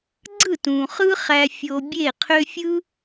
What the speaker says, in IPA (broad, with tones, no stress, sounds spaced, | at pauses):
ɡ͡ǀ ɯ˦˨ t ũ˨ χ ɯ˦ χ æ˧ fʲ o˧ bʲ e˦˨ qʰ ø˦ fʲ ɯ˦